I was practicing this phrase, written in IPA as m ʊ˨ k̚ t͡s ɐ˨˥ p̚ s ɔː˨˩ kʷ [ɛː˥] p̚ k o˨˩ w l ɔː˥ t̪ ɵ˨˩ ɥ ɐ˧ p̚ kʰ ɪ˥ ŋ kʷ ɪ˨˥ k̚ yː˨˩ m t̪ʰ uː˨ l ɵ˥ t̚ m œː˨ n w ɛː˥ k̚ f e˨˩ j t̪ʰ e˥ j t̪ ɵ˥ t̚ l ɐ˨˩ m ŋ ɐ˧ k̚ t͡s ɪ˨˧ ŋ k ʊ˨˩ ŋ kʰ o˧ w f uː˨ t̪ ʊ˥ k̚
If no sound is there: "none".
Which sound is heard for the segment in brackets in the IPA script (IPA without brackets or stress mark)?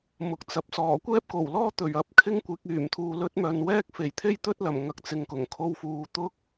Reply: ɛː˥